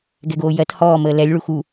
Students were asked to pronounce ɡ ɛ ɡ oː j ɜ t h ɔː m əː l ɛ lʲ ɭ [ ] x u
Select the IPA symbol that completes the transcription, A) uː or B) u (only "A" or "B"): B